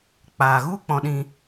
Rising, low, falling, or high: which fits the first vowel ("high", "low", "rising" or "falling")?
low